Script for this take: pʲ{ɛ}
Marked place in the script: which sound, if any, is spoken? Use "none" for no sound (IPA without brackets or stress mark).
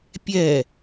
ɛ